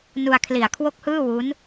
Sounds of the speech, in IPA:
n u˧ a̯ kʰ l i˨˩ a̯ kʰ w o˥˩ k̚ h ɯː˥˩ w u˦˥ n

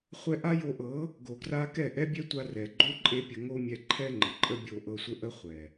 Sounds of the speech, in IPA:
χʷ ɛ˧ ʔ a˦ j o˧ ʔ ɤ˨˦ | ɡ o˨ ɡ r a˦ k ɛ˦˨ ʔ ɛ˦ bʲ ɛ˦ tʷ a˧ r ɛ˨ ɡ͡ǃ o˦ ǃʼ e˦ pʲ ə˧ ŋ o˦ mʲ ɛ˧ ǃʰ ɛ˦ ŋ͡ǃ ə˨ ǃʼ ə˦ bʲ o˧ ʔ ɤ˧ sʷ ə˦ ʔ ə˦ χʷ ɛ˨

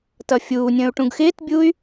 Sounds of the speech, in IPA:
t ʌ fʲ uː nʲ ə̃ː u̯ ʈ ũ ɡ x ɪː t bʲ uː y̯

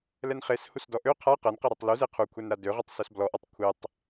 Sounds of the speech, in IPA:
l ɛ n χ e s h u s d ɔ ʔ ø qʰ a q ɛ n q ɛ ɾ ø tˤ l u z e qʰ u kʷʰ ɛ n ɾ a d ø ʁ ø tˤ s ø s b l ɔ ʔ ɔ tˤ kʷʰ e tˤ

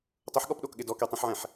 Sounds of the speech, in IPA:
tˤ ʊ ħ ɠ ɔ p ɗ o k ɠ ɪ d ɔ k e tˤ õ ħ ʕ ɛ̃ ħ

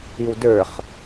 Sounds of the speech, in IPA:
i w d ə˞ χ

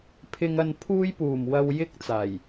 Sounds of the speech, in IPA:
pʰ ɪ˨ ŋ ɐ˨ n pʰ uː˧ j p uː˨˩ m w ɐ˨ w j ɪ˧ k̚ t͡s aː˨˩ j

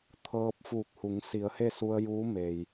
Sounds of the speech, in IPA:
t̪ʰ ɤː˧ p̚ f uː˧˩ k̚ h u˩˧ ŋ s i˩˧ ə̯ h e˥˨ s u˧ ə̯ j uː˧˥ m e˩ j

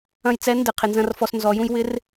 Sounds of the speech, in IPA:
ɐ̃˧ j t͡s ɛ˨˥ n d ɪ˩˧ qʰ ɪ˩˧ n z ɐ̃˧ r f ɔ˧ s n z ɔ˩˧ j ũ˧ j w ɪ˨˥ r

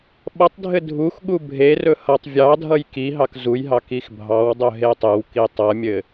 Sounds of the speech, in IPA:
ɓ ʌ tˤ dʱ ɘ dʱ u x ɠ u bʱ e r ɵ h ʌ tˤ vʲ ɑ dʱ ʌ j k i ɦ ɑ k z u j ɦ ɑ k i x bʱ ɑ w dˤ ɵ ɦ e tˤ ɘ w k i tˤ ʌ mʲ ɘ

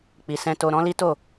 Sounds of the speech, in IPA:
k͡p i˨ s ɛ̃˧ t o˧ ɾ ɔ̃˦ l i˦ t o˦˨

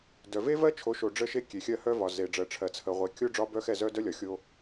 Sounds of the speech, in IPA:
d œ˨ v e˦ v ɜ˦ t͡ʃʰ o˨˦ ʃ o˨ ɖ͡ʐ ə˦ ʃ e˦ kʲ e˨ xʲ ɜ˦ h œ˦ v ɒ˨ z e˨ ɖ͡ʐ ɜ˨ ʈ͡ʂʰ ɜ˨ t͡sʰ ə˨ ʁʷ e˨ kʲ o˦ ɖ͡ʐ ɒ˦ b œ˦ x ɛ˦˨ z œ˦ d œ˦ lʲ ɒ˨ xʲ o˦

